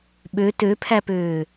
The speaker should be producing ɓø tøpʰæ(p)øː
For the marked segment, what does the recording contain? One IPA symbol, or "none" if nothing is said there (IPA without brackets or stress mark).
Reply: p